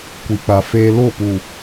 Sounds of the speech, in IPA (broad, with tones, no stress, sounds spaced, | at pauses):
kʷ i˨ k͡p a˨ f eː˦ l o˦˨ p uː˨